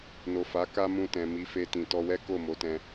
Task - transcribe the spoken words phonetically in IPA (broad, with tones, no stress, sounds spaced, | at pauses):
n o˨ f a˨˦ k a˦ m ũ˧ t ɛ̃˨ m i˨˦ f e˧ t ĩ˨ t ɔ˧ w ɛ˦ k o˦˨ m o˨˦ t ɛ̃˧